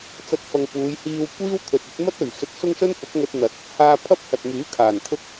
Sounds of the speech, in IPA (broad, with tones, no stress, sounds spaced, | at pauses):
t͡s ɐ˥ t̚ f ɐ˧ ŋ p uː˨˧ j h iː˧ w kʷ iː˥ w t̪ʰ ɵ˨ t̚ ɐ˨˥ t̚ m ɐ˥ t̚ ɵ˨˩ ɥ s ɵ˨ t̚ s ʊ˥ ŋ s ɵ˥ n f ʊ˨˥ k̚ ŋ ɵ˧ t̚ n̪ ɐ˨˥ t̚ | h aː˧ pʰ ɐ˥ p̚ h ɐ˨ t̚ m yː˨˥ kʰ aː˨˩ n t̪ʰ ʊ˥ k̚